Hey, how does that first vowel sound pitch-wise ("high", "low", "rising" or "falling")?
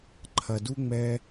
low